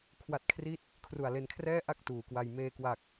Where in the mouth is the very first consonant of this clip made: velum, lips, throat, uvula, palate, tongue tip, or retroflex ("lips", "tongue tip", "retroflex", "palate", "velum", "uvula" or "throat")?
velum